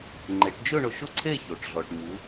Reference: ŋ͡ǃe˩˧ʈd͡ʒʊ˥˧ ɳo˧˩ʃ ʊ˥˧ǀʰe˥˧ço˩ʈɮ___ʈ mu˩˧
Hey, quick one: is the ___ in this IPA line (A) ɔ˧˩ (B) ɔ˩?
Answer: B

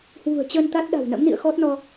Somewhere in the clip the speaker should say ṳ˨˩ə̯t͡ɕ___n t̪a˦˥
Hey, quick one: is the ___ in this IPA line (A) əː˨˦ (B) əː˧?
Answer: B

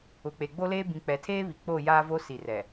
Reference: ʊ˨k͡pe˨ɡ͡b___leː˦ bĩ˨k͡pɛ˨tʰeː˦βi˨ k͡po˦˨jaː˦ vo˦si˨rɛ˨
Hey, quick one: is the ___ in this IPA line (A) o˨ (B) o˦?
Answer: B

